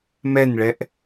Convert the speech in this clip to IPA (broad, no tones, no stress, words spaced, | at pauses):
mɛnɭɛʔ